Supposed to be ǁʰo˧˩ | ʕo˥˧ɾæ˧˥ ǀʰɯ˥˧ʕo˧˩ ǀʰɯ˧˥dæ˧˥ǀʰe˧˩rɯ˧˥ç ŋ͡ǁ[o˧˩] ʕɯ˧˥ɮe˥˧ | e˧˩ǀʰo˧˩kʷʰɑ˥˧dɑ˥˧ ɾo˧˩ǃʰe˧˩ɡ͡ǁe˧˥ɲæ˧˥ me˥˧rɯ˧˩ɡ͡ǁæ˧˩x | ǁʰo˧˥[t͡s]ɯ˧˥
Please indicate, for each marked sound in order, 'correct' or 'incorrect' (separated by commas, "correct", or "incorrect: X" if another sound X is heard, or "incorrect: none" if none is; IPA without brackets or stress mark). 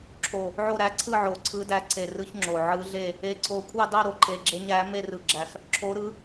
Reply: correct, incorrect: ɾ